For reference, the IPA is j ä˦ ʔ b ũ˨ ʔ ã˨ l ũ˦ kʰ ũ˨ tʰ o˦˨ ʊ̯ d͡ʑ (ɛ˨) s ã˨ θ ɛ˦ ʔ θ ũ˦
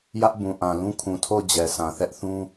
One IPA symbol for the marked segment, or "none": ɛ˨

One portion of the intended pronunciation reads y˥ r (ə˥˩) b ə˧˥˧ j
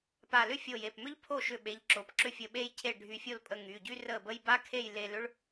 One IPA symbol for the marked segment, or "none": ə˥˩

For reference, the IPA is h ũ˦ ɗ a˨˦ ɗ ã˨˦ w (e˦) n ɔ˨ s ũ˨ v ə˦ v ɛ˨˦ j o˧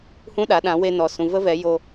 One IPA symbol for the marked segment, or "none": e˧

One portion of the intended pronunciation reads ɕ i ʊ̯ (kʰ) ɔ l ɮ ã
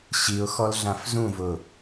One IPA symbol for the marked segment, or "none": x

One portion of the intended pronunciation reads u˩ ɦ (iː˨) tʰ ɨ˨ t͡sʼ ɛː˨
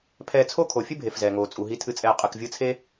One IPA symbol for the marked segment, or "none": i˨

